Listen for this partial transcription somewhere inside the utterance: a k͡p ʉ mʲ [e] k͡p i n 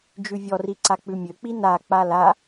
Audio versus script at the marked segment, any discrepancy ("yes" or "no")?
yes